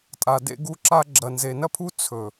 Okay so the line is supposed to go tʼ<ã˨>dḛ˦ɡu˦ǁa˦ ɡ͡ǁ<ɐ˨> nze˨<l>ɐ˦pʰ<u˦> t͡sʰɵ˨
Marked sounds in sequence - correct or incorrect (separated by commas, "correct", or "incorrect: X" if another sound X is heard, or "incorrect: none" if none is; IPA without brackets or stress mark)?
incorrect: a˨, correct, incorrect: n, correct